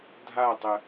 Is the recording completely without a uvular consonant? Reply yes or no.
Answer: yes